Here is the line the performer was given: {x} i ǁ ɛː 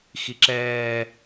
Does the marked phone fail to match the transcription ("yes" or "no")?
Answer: no